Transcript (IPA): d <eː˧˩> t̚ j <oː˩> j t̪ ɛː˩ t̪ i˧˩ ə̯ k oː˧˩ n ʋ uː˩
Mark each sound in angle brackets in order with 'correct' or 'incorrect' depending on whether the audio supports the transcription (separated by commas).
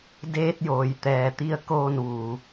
incorrect, correct